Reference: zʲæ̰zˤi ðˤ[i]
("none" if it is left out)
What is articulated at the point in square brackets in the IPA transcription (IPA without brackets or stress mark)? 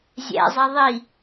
i